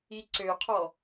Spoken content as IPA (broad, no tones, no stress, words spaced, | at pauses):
iǀøqʰɔ